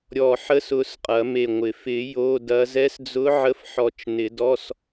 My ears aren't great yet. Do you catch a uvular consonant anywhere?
yes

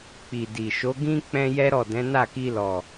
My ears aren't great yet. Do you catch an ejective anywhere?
no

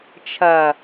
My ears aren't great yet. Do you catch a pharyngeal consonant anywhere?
no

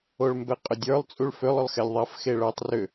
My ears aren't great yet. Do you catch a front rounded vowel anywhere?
yes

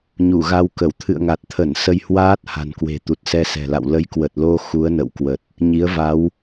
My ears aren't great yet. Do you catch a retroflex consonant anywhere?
no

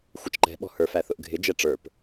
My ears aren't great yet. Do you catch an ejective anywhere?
no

